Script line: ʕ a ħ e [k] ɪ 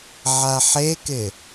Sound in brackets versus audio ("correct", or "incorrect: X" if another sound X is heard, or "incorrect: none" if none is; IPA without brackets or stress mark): correct